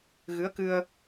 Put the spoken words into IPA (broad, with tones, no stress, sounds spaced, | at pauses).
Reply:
ɣ ɨ˧˥ ə̯ k ɨ˧ ə̯